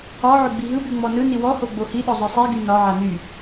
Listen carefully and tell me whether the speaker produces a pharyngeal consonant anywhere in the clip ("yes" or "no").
yes